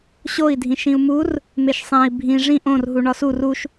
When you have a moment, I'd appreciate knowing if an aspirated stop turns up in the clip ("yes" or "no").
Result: no